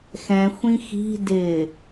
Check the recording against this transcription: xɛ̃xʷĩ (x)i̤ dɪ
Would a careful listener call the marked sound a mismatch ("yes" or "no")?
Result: no